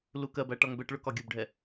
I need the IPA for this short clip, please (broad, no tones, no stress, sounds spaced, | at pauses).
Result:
l u k ɜ b æ ʈ ɒ ŋ b ɛ ʈ ɭ ʊ k ɒ ɡʲ ʊ b ɖʱ ɛ